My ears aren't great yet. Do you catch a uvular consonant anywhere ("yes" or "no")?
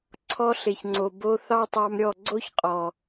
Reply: yes